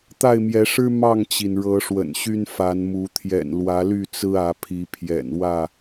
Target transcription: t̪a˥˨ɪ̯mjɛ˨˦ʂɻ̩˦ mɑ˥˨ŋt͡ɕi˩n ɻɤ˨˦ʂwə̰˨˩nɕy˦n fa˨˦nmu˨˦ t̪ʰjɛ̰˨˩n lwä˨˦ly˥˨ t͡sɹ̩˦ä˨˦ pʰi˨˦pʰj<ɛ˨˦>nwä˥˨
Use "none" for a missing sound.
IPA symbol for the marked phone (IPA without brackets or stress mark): ɛ̰˨˩